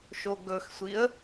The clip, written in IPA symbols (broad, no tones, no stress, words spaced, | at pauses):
ʃoɡɵxsʷiə̯